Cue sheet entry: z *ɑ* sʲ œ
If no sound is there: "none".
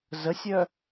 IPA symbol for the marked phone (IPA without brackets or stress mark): ə